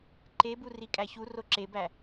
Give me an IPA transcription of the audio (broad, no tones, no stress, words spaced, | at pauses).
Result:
ǃebu rikʼæçu roǁebæ